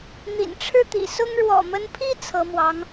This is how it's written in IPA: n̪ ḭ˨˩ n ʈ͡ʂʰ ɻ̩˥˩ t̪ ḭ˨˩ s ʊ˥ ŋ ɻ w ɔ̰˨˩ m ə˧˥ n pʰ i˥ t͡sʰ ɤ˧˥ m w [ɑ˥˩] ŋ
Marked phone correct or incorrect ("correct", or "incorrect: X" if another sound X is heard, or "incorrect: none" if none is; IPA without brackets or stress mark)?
incorrect: ɑ˧˥